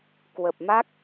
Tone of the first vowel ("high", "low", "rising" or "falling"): low